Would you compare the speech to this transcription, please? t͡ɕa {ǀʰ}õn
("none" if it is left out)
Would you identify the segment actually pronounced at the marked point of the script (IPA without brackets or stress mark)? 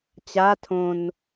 tʰ